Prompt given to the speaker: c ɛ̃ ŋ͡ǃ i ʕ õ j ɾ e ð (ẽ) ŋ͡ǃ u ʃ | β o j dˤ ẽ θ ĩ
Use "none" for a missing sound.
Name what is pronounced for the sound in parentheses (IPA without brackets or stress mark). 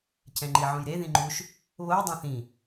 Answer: ĩ